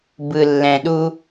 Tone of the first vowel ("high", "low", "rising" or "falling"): low